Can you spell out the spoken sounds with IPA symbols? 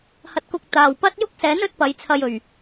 h ɐ˧ t̚ k ʊ˧ k̚ t̪ aː˨ w p ɐ˥ t̚ j ʊ˥ k̚ s ɛː˨˥ n ɵ˨˥ t̚ p ɐ˨˧ j t͡sʰ ɐ˧ j ɵ˨˩ ɥ

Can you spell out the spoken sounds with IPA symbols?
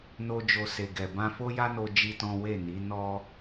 n o˦ d͡ʒ o˧ s e˨ ɡ ɛ˨ b ã˧ f o˦ j a˦ n o˧ d͡ʒ i˦ t ɔ̃˦ w e˦˨ n i˨˦ n ɔ˧

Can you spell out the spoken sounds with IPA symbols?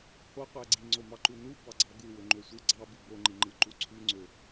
h o qʷ æ ɡ͡ǀ i ŋ͡ǀ o m ɑ ǃ u n u b ɑ ɡ͡ǀ ɑ ɡ u w ø ŋ͡ǃ ø sʷ ɯ ɡ͡ǀ ɑ b ɯ b o ŋ͡ǃ i ŋ͡ǃ ɯ ǃ u ǀʰ y ŋ͡ǀ ø

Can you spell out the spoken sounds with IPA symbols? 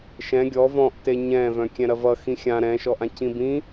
ʃ ɛ̃ ɡʲ ɔ v ɔ̃ ʔ t e ɲ ɛ̃ v œ̃ kʲ ɛ̃ ɾ ɐ v ʌ x ĩ xʲ ã ɾ ɛ̃ ʃ ɔ ʔ ã c ĩ b ĩ

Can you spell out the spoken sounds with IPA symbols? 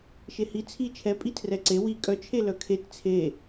ʃ e h i t͡sʰ i t͡ʃʰ ɛ pʼ i tʰ r ɛ ǀ e w i kʼ œ t͡ʃʰ e l œ kʰ e t t͡sʰ e

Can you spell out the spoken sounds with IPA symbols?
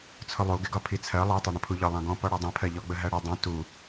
t͡sʰ ʊ lˠ u ɡ ɪ ɡ ɒ pʰ i t͡sʰ ɜ lˠ æ tˤ ɑ ɳ ə̃ pʰ u ʎ ɒ lˠ ɑ̃ ɡ ɔ̃ p ɔ ɽ ɔ dˤ ĩ pʰ ɜ ʎ ɔ ɡ͡b ə ɦ æ ɽ ʌ dˤ ə̃ t u

